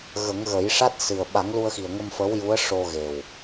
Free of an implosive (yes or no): no